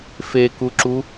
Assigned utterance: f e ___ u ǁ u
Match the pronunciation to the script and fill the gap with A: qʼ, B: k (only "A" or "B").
B